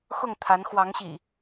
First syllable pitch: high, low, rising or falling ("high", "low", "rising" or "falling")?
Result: falling